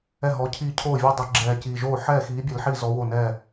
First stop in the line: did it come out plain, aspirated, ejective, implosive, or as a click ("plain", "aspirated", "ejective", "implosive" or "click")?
aspirated